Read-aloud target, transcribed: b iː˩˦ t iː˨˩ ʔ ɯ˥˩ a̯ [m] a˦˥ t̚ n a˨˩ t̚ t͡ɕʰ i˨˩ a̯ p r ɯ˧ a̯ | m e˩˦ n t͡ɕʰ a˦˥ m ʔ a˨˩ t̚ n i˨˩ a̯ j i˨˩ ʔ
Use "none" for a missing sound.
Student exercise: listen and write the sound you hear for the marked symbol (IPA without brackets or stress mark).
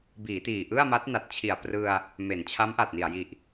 m